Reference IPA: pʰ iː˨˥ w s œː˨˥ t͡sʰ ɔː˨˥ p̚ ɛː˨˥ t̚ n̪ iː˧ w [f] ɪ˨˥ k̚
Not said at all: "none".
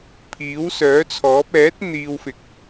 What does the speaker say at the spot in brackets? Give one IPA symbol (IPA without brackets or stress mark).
f